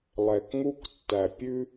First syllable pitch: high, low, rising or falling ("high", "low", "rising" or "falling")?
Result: low